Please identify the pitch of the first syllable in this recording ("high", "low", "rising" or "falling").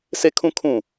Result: high